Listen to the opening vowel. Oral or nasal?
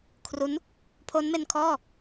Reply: oral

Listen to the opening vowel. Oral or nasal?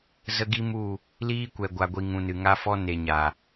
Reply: oral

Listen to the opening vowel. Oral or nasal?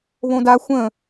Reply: nasal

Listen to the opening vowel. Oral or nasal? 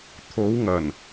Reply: oral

